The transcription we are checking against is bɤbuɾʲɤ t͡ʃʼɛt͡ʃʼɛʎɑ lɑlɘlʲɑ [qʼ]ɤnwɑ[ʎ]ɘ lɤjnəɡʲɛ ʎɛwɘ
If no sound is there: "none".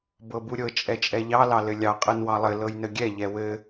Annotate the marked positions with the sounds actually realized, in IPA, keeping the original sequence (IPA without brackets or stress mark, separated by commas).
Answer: qʼ, lˠ